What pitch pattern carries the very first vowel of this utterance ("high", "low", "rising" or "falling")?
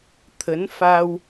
rising